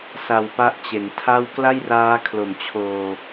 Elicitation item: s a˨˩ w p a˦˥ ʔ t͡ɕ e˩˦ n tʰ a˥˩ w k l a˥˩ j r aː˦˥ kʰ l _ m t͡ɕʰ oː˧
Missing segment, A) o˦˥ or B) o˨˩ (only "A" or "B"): B